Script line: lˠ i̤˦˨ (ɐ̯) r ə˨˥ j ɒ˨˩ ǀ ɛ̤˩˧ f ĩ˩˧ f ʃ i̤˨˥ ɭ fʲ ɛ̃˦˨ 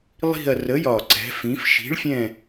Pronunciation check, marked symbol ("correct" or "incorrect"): correct